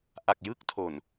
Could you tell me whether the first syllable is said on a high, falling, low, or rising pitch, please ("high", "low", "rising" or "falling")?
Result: low